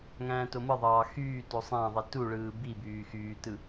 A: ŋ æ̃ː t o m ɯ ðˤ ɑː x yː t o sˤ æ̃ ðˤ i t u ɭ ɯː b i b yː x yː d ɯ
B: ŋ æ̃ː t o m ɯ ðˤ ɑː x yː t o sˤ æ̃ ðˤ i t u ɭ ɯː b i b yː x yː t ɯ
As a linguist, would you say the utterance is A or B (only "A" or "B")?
B